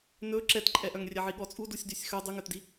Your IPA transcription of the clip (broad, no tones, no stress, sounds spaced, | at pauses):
n ɵ ǁ ɛ t ǃʼ ɛ ʔ œ ŋ rʲ ɛ ʕ i ɠ ɔ t͡sʼ u d u sʲ d y sʲ x œ dˤ ʉ ŋ œ t d i